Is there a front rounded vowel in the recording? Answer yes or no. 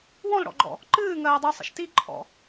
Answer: yes